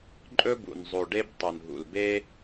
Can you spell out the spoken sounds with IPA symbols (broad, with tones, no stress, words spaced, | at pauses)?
ǃʼɵ˦bṵ˨n zˤo˨ɖe˦b tˤu˨nɦṵ˨lbe˦